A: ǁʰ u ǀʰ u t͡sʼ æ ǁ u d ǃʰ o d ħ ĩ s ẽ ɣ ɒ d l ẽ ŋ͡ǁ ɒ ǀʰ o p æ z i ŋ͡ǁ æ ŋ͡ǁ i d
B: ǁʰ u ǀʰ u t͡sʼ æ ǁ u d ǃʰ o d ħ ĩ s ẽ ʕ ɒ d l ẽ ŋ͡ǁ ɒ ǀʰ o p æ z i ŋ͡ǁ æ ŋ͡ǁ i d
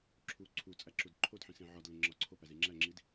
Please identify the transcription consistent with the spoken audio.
B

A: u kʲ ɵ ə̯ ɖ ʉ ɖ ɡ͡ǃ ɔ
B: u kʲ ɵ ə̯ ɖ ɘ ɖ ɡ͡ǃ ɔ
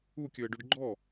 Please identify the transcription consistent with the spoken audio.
A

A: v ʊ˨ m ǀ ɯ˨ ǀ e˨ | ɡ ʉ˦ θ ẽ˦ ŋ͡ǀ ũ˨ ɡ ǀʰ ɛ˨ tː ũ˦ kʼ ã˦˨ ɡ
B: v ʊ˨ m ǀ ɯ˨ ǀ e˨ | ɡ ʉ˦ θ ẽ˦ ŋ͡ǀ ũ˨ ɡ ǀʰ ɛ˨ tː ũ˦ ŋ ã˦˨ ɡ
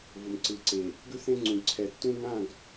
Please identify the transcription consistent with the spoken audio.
B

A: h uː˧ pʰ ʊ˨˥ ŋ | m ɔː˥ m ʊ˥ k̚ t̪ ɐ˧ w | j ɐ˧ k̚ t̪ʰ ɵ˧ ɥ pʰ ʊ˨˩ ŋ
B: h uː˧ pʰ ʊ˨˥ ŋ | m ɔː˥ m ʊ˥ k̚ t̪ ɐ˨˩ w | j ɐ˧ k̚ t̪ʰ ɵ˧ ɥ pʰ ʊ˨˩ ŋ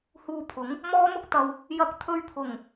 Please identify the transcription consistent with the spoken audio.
A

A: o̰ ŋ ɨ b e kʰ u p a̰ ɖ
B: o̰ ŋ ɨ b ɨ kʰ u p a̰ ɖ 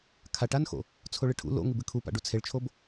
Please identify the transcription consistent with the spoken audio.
B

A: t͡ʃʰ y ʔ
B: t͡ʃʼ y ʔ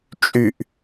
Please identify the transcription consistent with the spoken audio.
B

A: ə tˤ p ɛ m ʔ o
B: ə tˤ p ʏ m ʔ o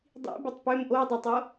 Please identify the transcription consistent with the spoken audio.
B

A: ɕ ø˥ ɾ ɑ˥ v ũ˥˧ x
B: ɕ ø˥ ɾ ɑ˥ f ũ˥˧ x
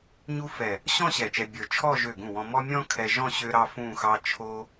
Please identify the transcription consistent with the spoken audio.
B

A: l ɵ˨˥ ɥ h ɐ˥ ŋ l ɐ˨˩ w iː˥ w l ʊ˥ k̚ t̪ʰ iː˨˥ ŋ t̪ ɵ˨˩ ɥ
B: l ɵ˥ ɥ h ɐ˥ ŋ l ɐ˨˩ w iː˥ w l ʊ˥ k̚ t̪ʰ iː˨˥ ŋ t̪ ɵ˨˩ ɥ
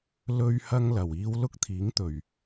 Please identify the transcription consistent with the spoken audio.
B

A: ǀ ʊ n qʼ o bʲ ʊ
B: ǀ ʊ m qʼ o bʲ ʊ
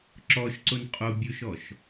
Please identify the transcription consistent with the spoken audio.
A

